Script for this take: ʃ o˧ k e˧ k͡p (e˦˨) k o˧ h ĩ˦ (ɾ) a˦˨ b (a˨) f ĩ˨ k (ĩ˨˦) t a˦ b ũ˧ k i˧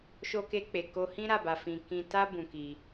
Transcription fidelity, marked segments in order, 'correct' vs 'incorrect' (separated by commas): incorrect, correct, correct, incorrect